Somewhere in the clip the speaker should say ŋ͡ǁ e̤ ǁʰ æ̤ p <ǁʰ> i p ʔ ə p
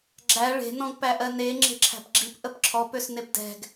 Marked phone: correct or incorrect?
incorrect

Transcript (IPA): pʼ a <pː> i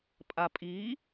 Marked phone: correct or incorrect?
incorrect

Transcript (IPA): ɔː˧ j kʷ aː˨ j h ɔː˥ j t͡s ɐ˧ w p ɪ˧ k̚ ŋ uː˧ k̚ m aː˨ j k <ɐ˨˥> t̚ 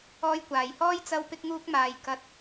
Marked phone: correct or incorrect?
incorrect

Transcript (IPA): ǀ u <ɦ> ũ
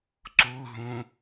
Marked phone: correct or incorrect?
correct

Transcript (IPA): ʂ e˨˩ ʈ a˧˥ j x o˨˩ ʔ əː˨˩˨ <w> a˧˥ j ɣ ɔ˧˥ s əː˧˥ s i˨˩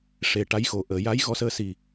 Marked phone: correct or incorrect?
incorrect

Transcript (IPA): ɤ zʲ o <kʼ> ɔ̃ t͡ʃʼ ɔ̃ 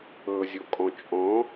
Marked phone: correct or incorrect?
correct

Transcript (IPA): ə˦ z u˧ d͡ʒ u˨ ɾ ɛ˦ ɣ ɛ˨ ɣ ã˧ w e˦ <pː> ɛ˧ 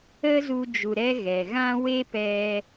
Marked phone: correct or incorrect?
incorrect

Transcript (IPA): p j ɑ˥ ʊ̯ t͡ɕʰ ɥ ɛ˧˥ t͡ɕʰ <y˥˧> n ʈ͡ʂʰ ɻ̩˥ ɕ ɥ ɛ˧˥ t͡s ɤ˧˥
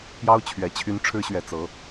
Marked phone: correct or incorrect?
incorrect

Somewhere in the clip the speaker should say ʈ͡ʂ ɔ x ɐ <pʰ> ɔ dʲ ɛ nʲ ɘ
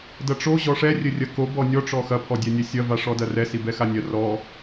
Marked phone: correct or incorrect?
correct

